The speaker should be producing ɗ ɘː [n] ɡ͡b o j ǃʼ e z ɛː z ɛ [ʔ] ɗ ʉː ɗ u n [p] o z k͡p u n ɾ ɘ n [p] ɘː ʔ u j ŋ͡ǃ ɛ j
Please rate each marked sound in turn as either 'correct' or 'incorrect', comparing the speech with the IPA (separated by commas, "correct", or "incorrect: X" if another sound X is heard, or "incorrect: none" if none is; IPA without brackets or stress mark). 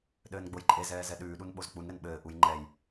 correct, incorrect: none, incorrect: ɓ, incorrect: ɓ